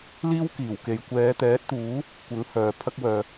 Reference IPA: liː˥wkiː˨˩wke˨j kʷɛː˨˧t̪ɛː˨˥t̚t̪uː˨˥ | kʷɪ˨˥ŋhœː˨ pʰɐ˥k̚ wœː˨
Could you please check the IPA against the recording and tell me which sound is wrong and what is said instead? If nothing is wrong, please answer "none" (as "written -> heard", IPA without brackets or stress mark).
none